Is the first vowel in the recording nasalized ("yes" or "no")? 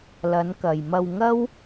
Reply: no